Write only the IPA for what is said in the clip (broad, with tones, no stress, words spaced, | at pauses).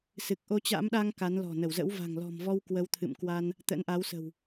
sɨ˨˩k̚ʔo˧t͡ɕa̰˧˥mɗa˧ŋ ka˨˦nlɔ̤˨˩ nə˧˩wzə̰˧˥wva̤˨˩ŋ lɔ̤˨˩mvɔ˧w kwə˨˦wt̪ʰɨ̰˧˨mkwa˧n | t̪ə̰˧˥nʔa˨˦wsə̤˨˩w